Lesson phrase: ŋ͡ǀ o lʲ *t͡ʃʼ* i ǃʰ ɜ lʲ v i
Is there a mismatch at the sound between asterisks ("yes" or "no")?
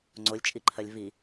no